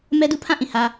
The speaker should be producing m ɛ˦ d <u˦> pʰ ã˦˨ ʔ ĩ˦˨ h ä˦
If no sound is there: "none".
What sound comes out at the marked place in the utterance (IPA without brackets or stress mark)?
u˦